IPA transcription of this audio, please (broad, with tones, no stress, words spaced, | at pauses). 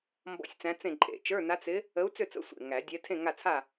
mbɔ̰˥˨sʲt͡sæ̃˧˥t͡sẽ˥˨ ǃʼḛ˨˩˦t͡ʃə˞˧˥˧ na˧˥t͡s ɪ˧˥ | ə˧˥u̯t͡sʏ˥˨t͡sə̰˧˥˧sʷḛ˧˩ ŋæ˨˩˦dʲɛ˧˥ tʰẽ˥˨ŋa˥˨t͡sʰa˥˨